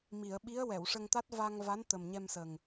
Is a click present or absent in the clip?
absent